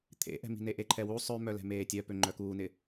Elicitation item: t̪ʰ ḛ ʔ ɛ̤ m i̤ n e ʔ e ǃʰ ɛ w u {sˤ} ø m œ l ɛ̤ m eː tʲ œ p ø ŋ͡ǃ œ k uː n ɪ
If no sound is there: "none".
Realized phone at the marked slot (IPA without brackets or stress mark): sˤ